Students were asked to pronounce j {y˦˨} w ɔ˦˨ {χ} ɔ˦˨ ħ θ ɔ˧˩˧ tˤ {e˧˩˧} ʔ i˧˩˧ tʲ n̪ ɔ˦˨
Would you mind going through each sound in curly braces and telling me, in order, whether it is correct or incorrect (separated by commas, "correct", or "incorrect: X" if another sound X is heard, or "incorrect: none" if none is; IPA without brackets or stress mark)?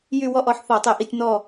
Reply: correct, incorrect: ʔ, correct